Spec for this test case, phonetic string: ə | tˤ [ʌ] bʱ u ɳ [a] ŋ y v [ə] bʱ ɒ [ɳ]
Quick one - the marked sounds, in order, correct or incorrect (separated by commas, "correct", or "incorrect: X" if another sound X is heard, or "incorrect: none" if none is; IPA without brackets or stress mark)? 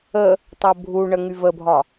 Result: correct, incorrect: ə, correct, incorrect: none